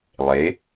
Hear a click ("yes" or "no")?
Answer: no